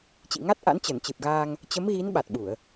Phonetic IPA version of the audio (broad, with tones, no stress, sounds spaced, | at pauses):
t͡ɕ ḭ˧˨ ŋ a˦˥ t̚ ʔ a̰˧˥ n t͡ɕ ə˧˩ n t͡ɕ ɨ˨˩ p̚ ɣ aː˧ ŋ | t͡ɕ ə˨˦ m ɣ i˨˦ n ɓ a˨˩ t̚ ɓ u˧˩˨ ə̯